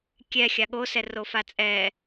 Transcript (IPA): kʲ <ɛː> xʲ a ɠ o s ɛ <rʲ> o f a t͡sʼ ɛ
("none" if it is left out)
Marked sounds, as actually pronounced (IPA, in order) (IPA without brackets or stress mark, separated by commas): ɛ, r